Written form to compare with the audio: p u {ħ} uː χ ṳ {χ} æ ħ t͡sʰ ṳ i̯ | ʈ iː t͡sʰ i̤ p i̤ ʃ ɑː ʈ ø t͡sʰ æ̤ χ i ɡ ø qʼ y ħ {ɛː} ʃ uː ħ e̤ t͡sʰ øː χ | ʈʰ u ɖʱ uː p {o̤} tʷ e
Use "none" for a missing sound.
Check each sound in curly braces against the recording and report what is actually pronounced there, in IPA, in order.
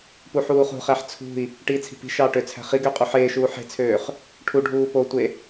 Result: ħ, χ, eː, o

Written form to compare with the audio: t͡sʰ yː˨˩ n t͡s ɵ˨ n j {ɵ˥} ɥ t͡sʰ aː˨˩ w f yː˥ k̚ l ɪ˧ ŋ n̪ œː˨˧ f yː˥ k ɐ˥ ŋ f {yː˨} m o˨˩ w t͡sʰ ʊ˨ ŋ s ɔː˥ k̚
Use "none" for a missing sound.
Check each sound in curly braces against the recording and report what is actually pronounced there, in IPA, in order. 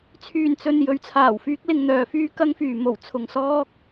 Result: ɵ˨˥, yː˨

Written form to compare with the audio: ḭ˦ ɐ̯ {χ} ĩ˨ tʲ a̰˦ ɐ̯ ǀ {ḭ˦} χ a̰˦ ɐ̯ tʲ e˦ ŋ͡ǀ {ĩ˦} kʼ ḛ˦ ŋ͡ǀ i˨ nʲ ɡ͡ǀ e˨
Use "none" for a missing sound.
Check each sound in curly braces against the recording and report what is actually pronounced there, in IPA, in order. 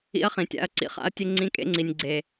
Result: χ, ḭ˦, ĩ˦

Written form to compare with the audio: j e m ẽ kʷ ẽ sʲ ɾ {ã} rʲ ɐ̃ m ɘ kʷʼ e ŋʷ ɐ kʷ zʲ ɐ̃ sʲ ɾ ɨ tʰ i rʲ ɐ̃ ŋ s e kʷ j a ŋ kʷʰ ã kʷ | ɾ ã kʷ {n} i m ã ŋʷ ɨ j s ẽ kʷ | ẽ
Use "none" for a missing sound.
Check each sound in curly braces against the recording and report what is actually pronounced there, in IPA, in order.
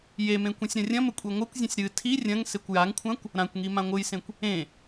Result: ɐ̃, ŋ

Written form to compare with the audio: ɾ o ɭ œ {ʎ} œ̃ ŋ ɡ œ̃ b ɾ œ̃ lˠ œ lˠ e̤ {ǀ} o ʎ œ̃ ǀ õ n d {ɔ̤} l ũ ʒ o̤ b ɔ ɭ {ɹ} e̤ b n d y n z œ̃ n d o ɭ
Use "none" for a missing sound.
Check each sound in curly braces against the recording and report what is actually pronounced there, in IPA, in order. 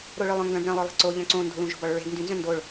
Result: lˠ, ǀ, o̤, ɹ

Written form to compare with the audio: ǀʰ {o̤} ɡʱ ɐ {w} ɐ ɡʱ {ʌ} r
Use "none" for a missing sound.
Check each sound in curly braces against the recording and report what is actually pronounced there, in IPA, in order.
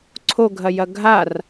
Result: o, j, a

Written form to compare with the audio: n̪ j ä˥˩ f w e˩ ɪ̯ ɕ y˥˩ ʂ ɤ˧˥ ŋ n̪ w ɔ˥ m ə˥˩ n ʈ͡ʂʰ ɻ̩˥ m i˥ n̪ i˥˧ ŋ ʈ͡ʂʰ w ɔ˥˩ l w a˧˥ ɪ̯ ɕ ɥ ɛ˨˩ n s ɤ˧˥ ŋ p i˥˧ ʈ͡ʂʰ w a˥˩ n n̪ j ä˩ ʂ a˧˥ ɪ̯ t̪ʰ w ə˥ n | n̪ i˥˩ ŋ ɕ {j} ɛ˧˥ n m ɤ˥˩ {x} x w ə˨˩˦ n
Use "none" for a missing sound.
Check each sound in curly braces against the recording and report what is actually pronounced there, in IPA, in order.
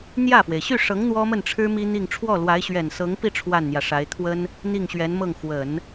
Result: ɥ, ŋ

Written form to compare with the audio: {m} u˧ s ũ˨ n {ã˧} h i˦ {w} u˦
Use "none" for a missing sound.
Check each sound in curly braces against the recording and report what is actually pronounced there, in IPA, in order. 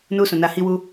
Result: n, a˧, w

